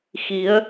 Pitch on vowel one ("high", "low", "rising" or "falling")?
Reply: rising